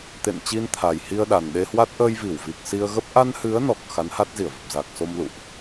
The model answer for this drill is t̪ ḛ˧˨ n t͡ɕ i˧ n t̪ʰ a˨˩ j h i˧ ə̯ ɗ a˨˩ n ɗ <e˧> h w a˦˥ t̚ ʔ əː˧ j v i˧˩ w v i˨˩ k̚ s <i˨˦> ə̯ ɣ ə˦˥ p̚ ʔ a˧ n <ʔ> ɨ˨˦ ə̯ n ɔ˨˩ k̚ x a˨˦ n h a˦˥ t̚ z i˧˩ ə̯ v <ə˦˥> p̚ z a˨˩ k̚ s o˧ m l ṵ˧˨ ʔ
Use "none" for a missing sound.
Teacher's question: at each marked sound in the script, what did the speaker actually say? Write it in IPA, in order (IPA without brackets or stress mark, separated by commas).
e˧, i˧, h, ə˨˩